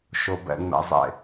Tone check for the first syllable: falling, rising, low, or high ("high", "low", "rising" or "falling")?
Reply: low